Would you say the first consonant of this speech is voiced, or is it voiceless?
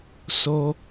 voiceless